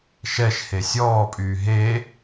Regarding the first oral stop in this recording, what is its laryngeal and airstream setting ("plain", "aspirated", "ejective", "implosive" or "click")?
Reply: ejective